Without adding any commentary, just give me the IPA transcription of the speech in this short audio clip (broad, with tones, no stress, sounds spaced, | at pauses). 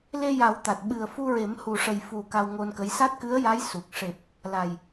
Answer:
l e˧ j a˨˩˦ w t̪ a˨˩ t̚ ɓ ɨ˨˩ ə̯ f u˧ ɹ e˨˩˦ m h u˨˩ ʂ ə˨˩ j f u˨˩ k a˧ w ŋ o˧ n k ə˧˥ j s a˦˥ t̚ k ɨ˧˥ ə̯ j a˧˥ j s u˨˩ k̚ ʂ e˨˩ p̚ | l a˨˩ j